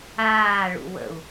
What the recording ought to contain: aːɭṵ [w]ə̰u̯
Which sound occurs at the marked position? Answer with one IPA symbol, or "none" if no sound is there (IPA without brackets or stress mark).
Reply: w